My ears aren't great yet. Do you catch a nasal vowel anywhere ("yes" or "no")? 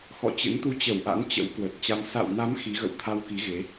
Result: no